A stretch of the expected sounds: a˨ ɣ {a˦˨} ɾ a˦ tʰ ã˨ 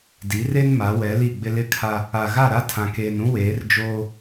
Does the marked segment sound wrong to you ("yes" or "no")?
no